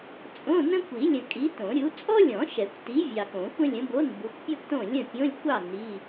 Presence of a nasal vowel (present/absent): present